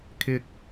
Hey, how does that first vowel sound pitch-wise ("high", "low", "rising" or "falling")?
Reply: high